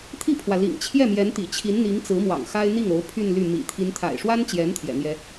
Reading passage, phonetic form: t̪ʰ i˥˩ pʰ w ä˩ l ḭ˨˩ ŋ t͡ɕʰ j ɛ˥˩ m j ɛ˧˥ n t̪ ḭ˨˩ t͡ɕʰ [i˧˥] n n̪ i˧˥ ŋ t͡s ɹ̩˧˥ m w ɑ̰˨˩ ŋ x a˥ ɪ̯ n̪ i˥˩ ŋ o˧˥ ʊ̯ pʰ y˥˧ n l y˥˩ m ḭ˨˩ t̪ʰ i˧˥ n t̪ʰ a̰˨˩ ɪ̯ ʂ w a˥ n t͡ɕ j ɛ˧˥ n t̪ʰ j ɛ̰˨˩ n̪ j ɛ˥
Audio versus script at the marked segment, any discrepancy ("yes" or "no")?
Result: no